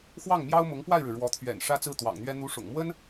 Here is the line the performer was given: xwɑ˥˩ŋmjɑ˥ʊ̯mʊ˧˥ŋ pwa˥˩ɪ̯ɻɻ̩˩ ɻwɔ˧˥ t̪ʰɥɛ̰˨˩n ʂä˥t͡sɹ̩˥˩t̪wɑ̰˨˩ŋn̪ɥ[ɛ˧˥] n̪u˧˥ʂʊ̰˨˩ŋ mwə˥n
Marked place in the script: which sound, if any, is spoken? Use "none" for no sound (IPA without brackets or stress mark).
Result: ɛ˥